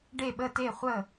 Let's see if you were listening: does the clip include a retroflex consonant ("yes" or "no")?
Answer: yes